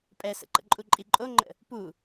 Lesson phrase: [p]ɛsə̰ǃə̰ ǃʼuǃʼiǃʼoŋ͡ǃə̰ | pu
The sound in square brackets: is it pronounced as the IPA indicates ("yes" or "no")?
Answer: no